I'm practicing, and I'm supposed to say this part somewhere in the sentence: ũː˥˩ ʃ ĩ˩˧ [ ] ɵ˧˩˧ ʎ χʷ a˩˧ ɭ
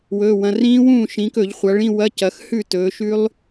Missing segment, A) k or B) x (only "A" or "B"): A